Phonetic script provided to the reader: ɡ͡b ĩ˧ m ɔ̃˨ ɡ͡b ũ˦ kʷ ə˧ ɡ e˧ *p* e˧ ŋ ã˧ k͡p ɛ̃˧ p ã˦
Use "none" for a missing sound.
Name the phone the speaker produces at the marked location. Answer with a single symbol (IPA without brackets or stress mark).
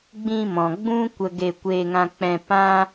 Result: kʷ